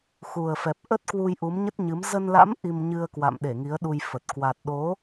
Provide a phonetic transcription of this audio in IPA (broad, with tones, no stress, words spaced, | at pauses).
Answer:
xu˨˩ə̯fɛ˨˩p̚ ʔə˦˥t̚kwu˧j ʔu˨˦mɲə˦˥t̚ɲɨ˨˦m zə˧nla̰˧˥m ʔi˧mɲɨ˧ə̯kwa̰˧˨mɗe˧˩ ŋi˨˦ə̯ɗu˧jfə˨˩t̚ kwa˨˩t̚ɗo˨˦